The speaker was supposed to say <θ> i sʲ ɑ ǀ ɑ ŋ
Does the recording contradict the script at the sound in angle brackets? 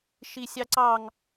yes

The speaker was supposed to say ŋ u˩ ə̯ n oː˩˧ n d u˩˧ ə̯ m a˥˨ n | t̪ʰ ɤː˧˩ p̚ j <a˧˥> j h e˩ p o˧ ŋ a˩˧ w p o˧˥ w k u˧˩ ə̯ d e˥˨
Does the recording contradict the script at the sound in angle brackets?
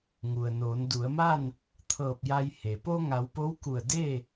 yes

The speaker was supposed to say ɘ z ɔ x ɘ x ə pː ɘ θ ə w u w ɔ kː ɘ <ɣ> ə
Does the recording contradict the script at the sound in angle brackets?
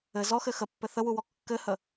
yes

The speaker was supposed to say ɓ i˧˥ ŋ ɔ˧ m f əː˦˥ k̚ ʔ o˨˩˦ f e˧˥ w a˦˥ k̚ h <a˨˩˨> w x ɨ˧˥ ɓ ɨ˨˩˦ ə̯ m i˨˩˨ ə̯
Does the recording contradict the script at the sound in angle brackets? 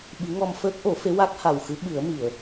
yes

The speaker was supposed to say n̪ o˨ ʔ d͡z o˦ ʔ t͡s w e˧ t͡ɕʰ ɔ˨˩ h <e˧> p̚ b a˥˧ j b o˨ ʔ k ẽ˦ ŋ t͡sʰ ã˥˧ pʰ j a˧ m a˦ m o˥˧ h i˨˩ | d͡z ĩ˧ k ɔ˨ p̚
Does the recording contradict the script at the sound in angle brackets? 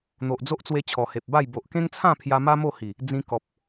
yes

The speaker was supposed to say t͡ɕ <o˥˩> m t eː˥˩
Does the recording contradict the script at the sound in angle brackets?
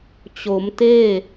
yes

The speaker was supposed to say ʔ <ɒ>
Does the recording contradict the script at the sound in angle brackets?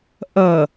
yes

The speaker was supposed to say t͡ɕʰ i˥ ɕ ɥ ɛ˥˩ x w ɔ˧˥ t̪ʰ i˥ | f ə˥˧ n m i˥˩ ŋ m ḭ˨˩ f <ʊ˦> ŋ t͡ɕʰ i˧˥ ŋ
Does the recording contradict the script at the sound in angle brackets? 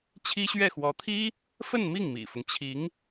no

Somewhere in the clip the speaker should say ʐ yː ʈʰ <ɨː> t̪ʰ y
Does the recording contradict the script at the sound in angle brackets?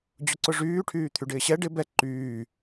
yes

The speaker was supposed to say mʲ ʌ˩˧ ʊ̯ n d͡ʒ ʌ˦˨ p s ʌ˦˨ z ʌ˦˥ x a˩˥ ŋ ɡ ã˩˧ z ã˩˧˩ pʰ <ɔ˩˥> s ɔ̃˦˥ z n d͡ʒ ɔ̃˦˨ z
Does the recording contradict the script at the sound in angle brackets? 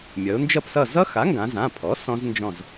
no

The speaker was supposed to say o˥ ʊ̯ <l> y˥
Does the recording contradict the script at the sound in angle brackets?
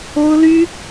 no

